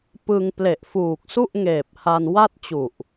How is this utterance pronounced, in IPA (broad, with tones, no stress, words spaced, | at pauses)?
pɯ˧ŋ ple˨˩ʔfuː˨˩k̚su˥˩ʔŋeː˨˩p̚ ha˧nwa˥˩t̚ t͡ɕu˨˩ʔ